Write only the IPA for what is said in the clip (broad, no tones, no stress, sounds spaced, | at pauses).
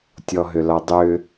tʲ ɔ ɦ ʏ l ɒ dˤ ʏ